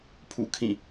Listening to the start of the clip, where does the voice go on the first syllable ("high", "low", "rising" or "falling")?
falling